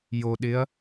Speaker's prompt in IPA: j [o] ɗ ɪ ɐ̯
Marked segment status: correct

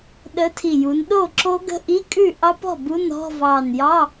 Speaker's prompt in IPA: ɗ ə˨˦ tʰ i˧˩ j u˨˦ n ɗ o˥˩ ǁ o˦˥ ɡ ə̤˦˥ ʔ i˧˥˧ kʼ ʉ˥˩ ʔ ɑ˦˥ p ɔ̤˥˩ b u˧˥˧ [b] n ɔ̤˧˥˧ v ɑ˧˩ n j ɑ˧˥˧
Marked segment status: incorrect: none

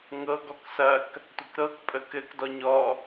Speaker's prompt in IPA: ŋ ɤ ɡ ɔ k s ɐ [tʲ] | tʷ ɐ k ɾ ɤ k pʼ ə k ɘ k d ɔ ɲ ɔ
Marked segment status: incorrect: k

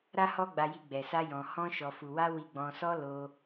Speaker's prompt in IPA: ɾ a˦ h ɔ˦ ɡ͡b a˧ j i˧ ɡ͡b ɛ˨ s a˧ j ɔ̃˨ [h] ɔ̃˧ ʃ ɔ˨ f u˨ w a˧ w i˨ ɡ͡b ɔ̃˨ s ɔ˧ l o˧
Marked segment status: correct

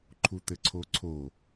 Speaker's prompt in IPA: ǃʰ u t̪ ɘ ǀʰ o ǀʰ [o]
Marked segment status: correct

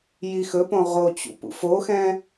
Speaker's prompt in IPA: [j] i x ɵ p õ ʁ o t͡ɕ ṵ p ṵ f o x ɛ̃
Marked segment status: correct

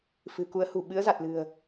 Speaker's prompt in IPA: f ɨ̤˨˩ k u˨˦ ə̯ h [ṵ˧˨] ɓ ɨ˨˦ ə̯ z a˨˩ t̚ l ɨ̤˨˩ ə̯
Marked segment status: incorrect: ṳ˨˩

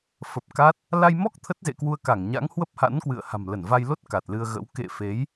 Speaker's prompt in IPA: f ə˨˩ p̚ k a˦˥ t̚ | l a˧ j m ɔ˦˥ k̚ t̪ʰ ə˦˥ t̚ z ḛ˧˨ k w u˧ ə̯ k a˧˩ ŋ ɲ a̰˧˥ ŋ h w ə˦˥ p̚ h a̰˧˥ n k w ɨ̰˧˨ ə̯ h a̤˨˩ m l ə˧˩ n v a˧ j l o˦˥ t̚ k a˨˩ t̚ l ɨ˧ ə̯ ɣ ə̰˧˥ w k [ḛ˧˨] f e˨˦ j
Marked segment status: correct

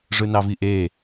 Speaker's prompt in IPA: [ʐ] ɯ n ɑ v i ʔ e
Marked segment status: correct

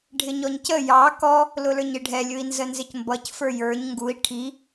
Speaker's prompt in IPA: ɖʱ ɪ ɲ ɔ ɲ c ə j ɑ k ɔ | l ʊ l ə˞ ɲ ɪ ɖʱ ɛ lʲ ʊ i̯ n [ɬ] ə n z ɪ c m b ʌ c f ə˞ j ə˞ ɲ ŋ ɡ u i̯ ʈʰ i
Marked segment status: incorrect: z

